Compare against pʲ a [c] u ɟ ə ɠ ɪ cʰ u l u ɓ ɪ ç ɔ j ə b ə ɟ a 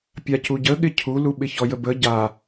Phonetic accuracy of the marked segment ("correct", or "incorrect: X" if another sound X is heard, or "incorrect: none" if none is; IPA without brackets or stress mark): correct